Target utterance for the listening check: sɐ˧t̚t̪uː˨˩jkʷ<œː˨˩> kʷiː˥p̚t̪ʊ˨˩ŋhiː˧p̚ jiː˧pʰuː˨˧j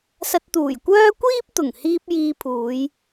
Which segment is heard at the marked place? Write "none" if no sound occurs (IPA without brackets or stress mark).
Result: œː˥